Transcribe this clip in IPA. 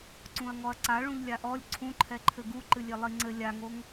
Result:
ǀ ũ ɐ̯ ŋ ɔ ɐ̯ ǀ a ɭ ũ ʎ lʲ a ʔ ɔ lʲ ǀʰ ũ ǃʰ ɛ ǃʰ ɘ ɡ u ǃ ɨ lʲ e lˠ i ŋ͡ǀ ɘ lʲ a ŋ o ŋ

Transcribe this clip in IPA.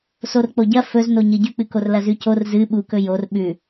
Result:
s o r k͡p o ɟ ɐ f ɵ z n o ɲ ɨ ɟ ʉ k͡p ɨ k o r l ɐ z ʉ c o r z ɨ ɓ u k ɵ j o r ɓ ʉ

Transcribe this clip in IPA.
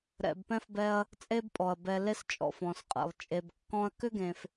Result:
ɾ ɛ̰˨ b p ɛ̃˥ f b ɛ˦ ɐ̯ | t͡sʼ e˦ b pʼ ɔ˩ ɐ̯ b ɛ˨ l e˦ s t͡ʃʼ ɔ̰˩ f ɔ̃˩ s qʼ ɛ̰˩ lˠ t͡ʃʼ e˨ b kː ɔ̃˦ ɐ̯ k ʏ˥ ɡ ẽ˨ f

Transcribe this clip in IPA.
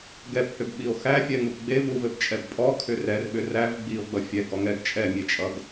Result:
ɡ ɛ p h ʏ b ɓ i o̯ x æ fʲ ɛ ŋ u p ɡ͡b e v u v ɘ b t͡ʃʼ ɛ b pʼ ɔ kʰ ʏ r ɛ r ɓ ʏ r æ v ɡ͡b i o̯ ɡ͡b ʌ fʲ ɛ ɡ ɔ ŋ ɛ ɡ t͡ʃʼ ɛ mʲ e t͡ʃʼ ʌ ɡ

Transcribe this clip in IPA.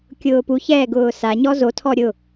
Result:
kʲ ʊː p u ç ɛː ɡ ʊː s a ɲ ɔ z o tʰ ɔ ɾʲ ʊ

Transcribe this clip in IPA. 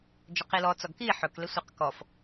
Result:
d͡ʒ ɵ q i l ɔ t͡s ɔ ɡ k i ħ ɵ k l e sʷ e q k ɔ f

